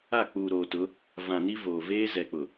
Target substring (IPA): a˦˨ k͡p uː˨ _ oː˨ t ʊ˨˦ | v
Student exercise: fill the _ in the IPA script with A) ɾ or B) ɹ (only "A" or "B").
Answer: A